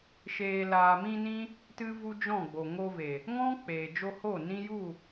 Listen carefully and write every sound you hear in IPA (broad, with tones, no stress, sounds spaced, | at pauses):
ʃ eː˨ l aː˨ m ĩ˧ n ĩ˦ | t ɨ˦ v u˦ d͡ʒ ɔ̃˦˨ ɡ͡b o˨ ŋ o˧ v e˨ | ŋ ɔ̃˦ k͡p eː˨ d͡ʒ o˧ h o˦˨ n ĩ˦ j u˦˨